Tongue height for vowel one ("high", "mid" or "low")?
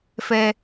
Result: mid